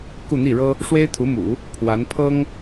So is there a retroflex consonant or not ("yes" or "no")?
yes